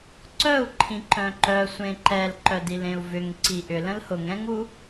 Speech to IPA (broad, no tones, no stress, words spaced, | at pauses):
ǀœu̯ ǃʰĩǃœ̃ǃœ sʷẽǃɛl ǃœdilẽu̯vʏŋ ǀiʔʏ lə̃lhʊŋ ɛ̃ŋu